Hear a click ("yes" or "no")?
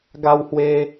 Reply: no